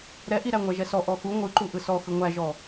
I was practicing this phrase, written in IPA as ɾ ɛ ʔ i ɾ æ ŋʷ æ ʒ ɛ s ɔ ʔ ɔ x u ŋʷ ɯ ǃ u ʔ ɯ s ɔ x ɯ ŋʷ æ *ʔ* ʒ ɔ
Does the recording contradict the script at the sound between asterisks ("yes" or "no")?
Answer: yes